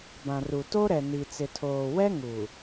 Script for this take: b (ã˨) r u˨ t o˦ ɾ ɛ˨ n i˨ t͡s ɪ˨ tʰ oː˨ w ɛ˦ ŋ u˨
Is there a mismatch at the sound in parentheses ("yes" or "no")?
no